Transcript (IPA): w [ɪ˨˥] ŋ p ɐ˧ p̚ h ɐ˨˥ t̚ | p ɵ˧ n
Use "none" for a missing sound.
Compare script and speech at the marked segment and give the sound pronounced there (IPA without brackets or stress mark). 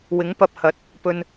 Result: ɪ˨˥